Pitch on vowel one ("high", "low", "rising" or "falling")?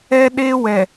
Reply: high